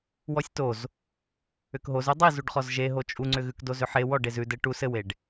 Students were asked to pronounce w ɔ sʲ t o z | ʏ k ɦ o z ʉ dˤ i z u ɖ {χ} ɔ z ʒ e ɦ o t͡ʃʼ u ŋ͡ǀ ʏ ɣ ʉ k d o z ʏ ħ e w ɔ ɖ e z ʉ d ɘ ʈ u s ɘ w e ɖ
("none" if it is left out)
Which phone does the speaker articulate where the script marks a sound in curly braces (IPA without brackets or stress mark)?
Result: χ